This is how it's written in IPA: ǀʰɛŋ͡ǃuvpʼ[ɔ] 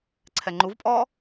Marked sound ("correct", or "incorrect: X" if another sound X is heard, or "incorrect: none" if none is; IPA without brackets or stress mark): correct